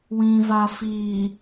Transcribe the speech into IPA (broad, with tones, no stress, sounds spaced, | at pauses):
w ĩ˨ v a˨ f iː˨